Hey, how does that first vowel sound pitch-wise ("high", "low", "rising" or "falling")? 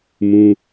high